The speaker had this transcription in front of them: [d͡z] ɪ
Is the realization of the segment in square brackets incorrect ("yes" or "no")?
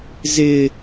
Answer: yes